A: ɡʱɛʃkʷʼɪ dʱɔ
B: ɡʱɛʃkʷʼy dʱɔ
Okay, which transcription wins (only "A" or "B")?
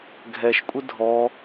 A